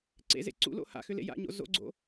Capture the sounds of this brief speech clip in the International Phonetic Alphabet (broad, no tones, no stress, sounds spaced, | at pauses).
ǀ ḛ z ḛ ǀ ṵ l o̰ h a̰ x ʏ l ḛ j a̰ ɲ o̰ z o̰ ɡ͡ǀ o̰